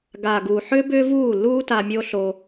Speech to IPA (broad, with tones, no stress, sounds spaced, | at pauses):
ɡ aː˨ ɡ uː˨ ħ ʏː˦ b ʏː˦ v uː˦˨ lː uː˦ t a˧ mʲ oː˦ ɬ o˧